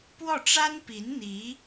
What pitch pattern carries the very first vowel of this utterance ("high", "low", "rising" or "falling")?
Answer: falling